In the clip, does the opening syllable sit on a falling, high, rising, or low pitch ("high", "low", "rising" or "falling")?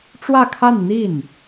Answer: falling